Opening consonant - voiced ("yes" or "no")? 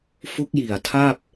no